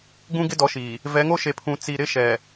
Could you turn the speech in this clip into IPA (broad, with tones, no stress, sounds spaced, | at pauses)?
ɡ ũ˦ ɡ ɪ˦ d ɔ˨˦ ʃ iː˨ | v ɛ˨˦ ŋ o˦ ʃ e˨ pʰ ũ˨ t͡s i˨ ɾ ɪ˦ ʃ ɛ˨